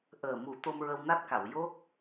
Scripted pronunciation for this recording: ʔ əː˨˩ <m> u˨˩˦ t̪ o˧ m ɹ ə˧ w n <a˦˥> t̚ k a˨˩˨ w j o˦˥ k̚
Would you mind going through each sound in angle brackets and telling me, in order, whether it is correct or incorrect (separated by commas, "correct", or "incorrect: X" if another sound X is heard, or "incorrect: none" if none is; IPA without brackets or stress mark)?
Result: correct, correct